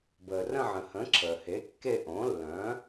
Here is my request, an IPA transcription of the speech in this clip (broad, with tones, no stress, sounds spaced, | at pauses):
b əː˩ r ə̃˦˨ ʕ ə̃˩ h ə̃˩˥ ǁʰ əː˩ h e˩˥ kː e˦˨ ʔ õ˩˥ lː œ̃˩˥